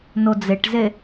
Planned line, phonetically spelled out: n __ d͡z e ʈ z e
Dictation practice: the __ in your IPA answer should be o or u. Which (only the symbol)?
o